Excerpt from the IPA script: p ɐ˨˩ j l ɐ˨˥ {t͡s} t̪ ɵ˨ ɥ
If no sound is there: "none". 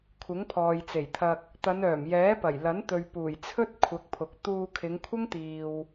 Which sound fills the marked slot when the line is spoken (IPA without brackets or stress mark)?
n